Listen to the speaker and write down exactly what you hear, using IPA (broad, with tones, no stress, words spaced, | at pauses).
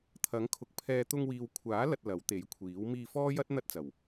t̪ʰɐ˨˥ŋkʰʊ˨˥k̚pʰɛː˧ t̪ʊ˧ŋwiː˨wkʷʰaː˨˥lɐ˨t̚ lɐ˨˥wt̪e˨˥jkʷʰiː˨˥w miː˧fɔː˥jɐ˥t̚ n̪ɐ˥t̚t͡sɐ˨˩w